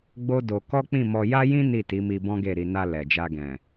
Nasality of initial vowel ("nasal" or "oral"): oral